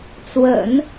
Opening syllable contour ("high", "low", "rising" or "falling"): low